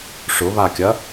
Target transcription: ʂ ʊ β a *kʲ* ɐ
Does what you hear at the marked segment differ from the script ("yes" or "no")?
no